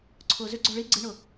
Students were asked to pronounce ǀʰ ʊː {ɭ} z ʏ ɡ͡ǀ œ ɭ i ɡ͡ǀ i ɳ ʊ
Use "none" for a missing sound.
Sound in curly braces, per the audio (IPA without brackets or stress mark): none